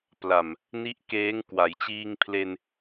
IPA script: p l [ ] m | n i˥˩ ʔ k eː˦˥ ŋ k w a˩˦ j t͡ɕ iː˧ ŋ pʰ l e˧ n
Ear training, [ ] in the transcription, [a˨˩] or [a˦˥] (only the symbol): a˨˩